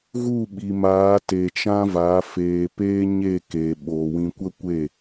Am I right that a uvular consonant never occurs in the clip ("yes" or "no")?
yes